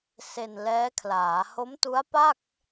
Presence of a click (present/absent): absent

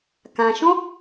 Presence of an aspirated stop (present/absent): absent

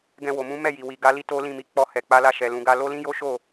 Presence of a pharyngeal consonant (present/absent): absent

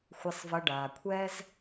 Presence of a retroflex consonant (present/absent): present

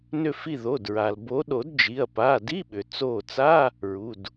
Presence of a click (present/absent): absent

